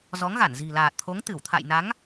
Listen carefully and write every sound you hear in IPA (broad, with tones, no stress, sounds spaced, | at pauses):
z ɔ˨˦ ŋ ɣ a˧˩ n z i̤˨˩ l aː˨˩ t̚ t̪ʰ o˨˦ ŋ t̪ ɨ˧˩ w t̪ʰ a̰˧˨ j n a˨˦ ŋ